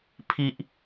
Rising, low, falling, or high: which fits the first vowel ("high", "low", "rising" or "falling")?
high